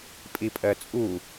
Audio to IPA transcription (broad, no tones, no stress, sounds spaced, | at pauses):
pʼ i pʼ ɜ t͡sʼ u